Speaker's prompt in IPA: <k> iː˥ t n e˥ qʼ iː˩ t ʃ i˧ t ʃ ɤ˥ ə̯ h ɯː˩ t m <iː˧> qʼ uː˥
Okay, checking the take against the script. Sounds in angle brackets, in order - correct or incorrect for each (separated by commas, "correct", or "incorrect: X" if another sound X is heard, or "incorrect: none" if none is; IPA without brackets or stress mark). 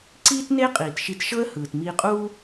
incorrect: ǀ, correct